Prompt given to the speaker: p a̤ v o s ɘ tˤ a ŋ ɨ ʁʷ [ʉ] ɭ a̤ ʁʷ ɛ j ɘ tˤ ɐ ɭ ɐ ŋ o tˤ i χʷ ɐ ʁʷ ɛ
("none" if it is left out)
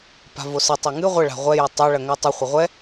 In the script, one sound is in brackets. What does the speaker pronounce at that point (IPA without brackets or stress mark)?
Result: ɘ